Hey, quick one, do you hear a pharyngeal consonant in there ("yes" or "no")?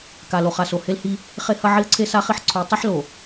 yes